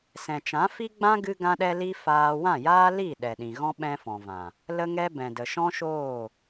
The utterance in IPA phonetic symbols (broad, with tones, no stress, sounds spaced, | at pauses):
s ɛ̃˨ t͡ʃ ã˨˦ f i˦ ɡ͡b ã˦ ɡ ɨ˦ ɡ ã˦ ɗ ɛ˦ l i˦ f aː˧ w ã˦˨ j aː˦ l i˦˨ ɗ ɛ˨ ɗ ĩ˨ ɣ ɔ̃˦ ɓ ɛ̃˧ f ɔ̃˨ v ã˨ | l ə˦ ŋ ɛ˦ b ɛ̃˨ d ə˨ ʃ ɔ̃˦ ʃ oː˦˨